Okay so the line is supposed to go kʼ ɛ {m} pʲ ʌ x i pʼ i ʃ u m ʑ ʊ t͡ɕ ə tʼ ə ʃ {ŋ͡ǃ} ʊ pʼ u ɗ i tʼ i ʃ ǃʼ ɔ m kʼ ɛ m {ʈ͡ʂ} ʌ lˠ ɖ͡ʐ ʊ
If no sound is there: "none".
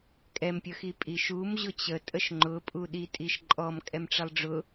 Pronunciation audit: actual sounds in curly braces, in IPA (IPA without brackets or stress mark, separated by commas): m, ŋ͡ǃ, ʈ͡ʂ